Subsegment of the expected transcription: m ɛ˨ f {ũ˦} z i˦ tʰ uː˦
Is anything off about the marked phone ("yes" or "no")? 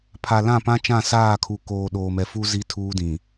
yes